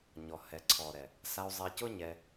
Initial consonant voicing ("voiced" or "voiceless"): voiced